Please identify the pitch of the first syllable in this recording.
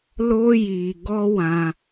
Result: high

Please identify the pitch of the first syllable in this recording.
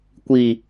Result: low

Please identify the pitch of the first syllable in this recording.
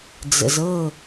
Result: low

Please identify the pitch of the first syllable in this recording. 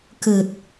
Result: low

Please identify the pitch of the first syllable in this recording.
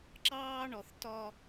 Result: high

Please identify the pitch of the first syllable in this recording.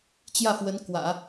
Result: falling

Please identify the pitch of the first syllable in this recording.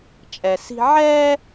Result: low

